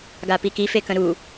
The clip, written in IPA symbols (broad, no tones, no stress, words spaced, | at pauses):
ɡapiki fekə̃ɾu